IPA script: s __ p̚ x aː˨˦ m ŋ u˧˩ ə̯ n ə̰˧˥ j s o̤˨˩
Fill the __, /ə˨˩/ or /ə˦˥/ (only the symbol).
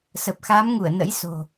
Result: ə˨˩